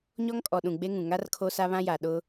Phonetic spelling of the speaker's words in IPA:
ɲ ɔ˦ ŋ kʼ ɔ˨ ɗ ũ˨ ɡ͡b e˦ ŋ ũ˨ ŋ a˦ r kʰ o˦ s a˦ β ã˦ j a˨ ɗ ʊ˦

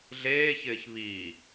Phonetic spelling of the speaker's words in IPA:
ɮ eː ç ɪː ç β i

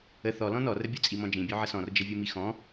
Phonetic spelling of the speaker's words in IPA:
ə θ ɔ l ɔ̃ n ɔ r ə bʲ o t͡sʼ i m ɔ̃ d͡ʒ ĩ bʲ o ʕ ə s ɔ̃ r d͡ʒ ə vʲ o m i x ɔ̃

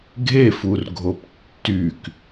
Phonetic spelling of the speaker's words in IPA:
ɡʱ e f u r ɡʱ o p tː y k

